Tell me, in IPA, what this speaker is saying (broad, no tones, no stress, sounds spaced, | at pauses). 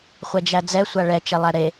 χʷ ɛ d͡ʒ æ d͡z ɛ sʷ a ɭ ɛ t͡ʃ ɛ lˠ æ ɾ e